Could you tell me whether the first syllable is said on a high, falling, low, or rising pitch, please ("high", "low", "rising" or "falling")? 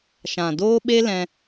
low